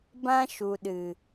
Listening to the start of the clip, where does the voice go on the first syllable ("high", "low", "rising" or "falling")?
high